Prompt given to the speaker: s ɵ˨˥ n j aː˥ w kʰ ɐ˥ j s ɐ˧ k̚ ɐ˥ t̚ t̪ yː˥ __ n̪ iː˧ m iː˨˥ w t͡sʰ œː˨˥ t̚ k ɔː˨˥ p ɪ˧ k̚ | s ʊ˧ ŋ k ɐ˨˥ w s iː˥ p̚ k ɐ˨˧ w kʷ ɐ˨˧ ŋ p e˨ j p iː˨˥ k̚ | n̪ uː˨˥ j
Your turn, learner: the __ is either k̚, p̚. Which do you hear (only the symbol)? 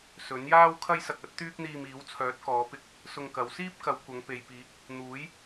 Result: k̚